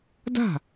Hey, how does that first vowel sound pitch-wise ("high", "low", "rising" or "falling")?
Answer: falling